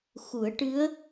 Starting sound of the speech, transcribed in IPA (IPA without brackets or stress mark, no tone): x